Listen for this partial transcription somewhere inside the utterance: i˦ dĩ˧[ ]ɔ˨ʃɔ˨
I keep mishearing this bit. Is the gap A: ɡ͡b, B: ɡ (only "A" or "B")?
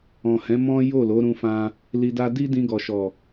B